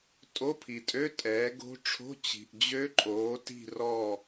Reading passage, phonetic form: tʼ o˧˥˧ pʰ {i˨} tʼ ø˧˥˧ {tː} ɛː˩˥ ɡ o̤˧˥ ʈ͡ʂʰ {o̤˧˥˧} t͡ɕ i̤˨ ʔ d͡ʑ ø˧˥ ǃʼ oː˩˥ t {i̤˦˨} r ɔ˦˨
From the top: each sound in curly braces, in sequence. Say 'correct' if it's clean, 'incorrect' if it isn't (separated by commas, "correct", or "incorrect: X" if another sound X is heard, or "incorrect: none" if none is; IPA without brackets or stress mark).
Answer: correct, incorrect: tʼ, correct, correct